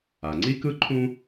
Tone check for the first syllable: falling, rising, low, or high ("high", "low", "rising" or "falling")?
low